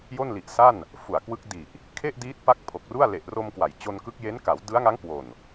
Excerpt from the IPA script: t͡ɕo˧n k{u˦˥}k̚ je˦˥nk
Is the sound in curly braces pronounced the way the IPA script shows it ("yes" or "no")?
no